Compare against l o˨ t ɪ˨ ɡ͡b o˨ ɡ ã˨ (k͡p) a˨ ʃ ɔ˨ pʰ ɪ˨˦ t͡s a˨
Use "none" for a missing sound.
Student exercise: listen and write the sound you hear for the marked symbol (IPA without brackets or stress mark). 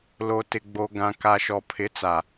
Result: k